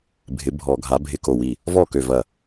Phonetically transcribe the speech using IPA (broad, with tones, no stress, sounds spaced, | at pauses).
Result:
bʱ ɪ˨˥ bʱ ɔ˧˩˧ ɡʱ a˨˥ bʱ ɪ˥˩ k o˥˩ w i˥˩ | v ɔ˥˩ k ø˧˩ v ɐ˧˩